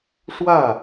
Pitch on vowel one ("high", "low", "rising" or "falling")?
falling